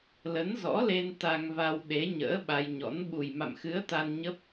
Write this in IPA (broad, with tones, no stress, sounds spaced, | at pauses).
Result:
l ə˨˦ n z ɔ̰˧˥ l e˧ n t̪ a˧ ŋ v a˧ w ɗ e˨˦ ɲ ə̰ː˧˥ ɓ a˧ j ɲ ɔ̰˧˥ n ɓ u˨˩ j m a̰˧˨ m x ɨ˨˦ ə̯ t̪ a˧ n ɲ ə˦˥ p̚